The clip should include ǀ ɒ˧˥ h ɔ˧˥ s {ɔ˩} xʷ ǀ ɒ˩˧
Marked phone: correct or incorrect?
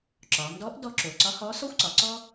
incorrect